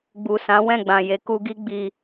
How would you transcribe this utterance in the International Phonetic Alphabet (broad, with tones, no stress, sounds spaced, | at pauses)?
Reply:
ɡ͡b u˨ s ã˨˦ w ɛ̃˦˨ ɡ͡b ã˨ j e˨˦ k u˧ ɡ i˦ ɡ͡b i˧